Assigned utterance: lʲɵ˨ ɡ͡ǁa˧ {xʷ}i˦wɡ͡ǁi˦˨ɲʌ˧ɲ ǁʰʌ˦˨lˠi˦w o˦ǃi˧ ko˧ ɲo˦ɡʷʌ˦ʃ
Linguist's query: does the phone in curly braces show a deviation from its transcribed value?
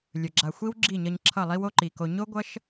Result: no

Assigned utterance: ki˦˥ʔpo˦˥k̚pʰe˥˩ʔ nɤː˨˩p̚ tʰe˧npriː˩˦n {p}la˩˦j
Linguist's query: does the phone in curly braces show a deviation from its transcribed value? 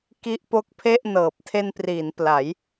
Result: no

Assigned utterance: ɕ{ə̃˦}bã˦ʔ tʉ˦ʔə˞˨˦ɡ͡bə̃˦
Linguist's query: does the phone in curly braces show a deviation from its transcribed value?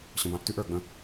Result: yes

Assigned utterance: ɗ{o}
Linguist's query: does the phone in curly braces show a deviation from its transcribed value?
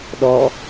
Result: yes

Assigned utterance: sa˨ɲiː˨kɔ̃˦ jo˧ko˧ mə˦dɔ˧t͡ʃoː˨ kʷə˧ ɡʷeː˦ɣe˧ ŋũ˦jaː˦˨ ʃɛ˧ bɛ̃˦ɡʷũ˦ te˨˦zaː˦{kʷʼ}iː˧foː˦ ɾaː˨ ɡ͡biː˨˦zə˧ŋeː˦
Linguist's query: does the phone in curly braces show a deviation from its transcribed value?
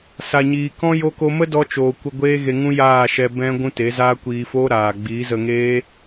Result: yes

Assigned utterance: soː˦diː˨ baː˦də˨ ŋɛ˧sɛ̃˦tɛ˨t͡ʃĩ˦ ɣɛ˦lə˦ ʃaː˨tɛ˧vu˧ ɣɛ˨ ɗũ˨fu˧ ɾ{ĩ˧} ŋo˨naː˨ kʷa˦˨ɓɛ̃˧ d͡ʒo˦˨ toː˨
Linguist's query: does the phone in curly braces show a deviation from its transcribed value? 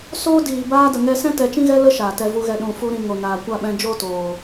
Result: no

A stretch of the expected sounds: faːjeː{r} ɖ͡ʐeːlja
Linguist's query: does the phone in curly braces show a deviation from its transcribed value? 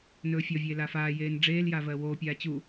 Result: yes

